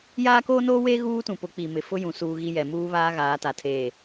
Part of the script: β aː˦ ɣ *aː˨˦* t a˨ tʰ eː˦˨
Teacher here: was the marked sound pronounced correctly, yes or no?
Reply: yes